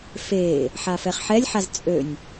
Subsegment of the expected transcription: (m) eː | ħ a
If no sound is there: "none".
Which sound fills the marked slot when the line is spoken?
f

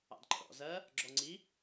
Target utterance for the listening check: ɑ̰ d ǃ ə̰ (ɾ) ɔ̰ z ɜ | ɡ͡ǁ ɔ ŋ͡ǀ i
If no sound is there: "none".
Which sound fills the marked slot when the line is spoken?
ɾ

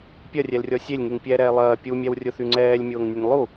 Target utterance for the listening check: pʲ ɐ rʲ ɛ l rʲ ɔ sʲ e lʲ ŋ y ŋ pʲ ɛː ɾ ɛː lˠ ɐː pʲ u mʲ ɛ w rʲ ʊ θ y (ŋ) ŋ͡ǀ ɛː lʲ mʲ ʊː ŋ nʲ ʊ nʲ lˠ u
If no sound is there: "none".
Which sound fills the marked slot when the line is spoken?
none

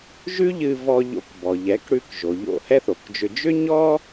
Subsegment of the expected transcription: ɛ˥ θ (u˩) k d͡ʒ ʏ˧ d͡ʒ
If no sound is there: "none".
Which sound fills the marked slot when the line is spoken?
o˩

